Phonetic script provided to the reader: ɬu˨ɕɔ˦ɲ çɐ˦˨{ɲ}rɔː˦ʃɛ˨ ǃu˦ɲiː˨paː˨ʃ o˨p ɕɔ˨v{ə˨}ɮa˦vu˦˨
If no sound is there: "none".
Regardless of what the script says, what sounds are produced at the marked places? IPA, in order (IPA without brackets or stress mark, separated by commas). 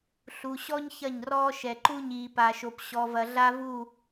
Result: ɲ, ɐ˨